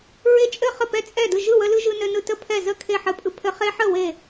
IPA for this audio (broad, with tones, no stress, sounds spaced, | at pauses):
ɹ e˦ t͡ʃʼ ɘ˥˨ χ ə˥˨ p ɛ˥˨ t͡sʼ ɛ˥˨ d ɯ˥˨ ʒ ɯ˥˨ w ə˦ l ɯ˦ ʒ ɯ˦ n ɘ˦ n ɯ˦ t ə˥˨ pʰ ɛ˥˨ z ə˥˨ kʰ e˥˨ ħ ɘ˦ pʼ ɯ˦ pʰ ɘ˦ χ e˦ ħ ə˥˨ w e˥˨